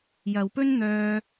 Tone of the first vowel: low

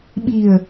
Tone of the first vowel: low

